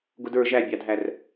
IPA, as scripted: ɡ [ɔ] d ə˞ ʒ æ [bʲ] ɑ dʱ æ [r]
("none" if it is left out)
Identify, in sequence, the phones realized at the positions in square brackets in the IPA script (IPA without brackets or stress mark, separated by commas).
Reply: ʊ, bʲ, r